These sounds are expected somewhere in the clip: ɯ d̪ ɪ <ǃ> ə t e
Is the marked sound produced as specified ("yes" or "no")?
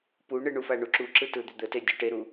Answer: no